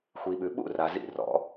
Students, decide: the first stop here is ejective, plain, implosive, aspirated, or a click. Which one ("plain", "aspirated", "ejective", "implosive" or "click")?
implosive